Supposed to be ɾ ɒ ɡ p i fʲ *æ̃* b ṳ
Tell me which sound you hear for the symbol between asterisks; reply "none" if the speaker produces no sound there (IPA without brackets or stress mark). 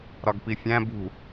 æ̃